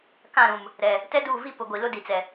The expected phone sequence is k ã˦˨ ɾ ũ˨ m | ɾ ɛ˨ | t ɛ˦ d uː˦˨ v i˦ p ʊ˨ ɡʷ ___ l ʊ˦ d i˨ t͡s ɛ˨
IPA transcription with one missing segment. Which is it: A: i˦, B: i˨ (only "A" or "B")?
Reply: B